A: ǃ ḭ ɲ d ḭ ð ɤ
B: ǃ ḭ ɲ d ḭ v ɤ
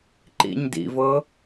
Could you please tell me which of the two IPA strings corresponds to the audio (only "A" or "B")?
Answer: B